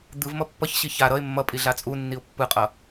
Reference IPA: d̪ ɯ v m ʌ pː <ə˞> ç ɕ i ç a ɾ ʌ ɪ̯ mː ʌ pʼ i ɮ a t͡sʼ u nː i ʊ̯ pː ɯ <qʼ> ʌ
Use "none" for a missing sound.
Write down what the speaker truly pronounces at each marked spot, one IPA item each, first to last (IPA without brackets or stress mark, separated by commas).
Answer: ʌ, qʼ